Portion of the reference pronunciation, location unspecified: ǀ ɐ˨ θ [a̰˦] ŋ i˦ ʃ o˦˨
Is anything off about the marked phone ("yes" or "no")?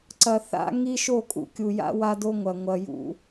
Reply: no